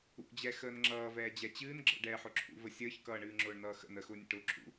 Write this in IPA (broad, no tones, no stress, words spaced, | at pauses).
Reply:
ṵd͡ʑɛ xəːnŋ͡ǁʌːvɛː d͡ʑɛt͡ɕɨːn ɡ͡ǁə̰ɖɛːħʊǁʰṵ vəsʲəːçkʌː ɳɨːŋ͡ǁʊːɳnʌːxə̰n əxʊːnʲə̰ʈʊː ǁʰṵ